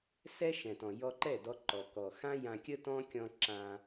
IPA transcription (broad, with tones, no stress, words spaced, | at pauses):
sɛ˦ ʃɛ̃˨tɔ̃˨ jɔ˧ǃɛ˦˨dɔ˧ ǃɔ˨ kɔ˨ xã˦jã˧kʲə˦ tɔ̃˦kʲɔ̃˧ ǁã˧